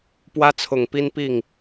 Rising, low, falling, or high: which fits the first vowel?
high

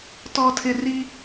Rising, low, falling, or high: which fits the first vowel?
high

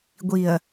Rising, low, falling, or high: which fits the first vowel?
low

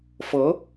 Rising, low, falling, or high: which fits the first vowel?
rising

